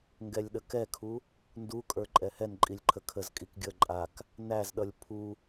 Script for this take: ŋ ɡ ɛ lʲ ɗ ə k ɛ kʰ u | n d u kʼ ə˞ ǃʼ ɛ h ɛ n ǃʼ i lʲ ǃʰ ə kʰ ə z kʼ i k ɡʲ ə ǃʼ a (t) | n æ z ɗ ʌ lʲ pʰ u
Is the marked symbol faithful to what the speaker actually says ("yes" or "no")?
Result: no